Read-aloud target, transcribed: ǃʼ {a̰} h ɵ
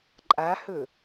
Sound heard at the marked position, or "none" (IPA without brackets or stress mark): a